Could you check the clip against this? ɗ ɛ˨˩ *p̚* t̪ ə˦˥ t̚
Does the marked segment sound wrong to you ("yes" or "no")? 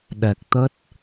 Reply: yes